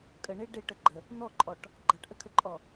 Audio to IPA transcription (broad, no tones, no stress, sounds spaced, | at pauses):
kʼ ə ɳ e ɖ e ʈ ə ɡ͡ǃ ə | n̪ ɔ ǃʼ ɔ ʈ | ɡ͡ǃ a ʈ ʔ ə kʰ ə ǃʼ ɔ